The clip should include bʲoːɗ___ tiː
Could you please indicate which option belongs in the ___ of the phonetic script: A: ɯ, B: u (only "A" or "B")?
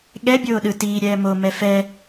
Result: A